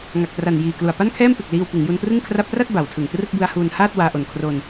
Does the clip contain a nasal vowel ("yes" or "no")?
no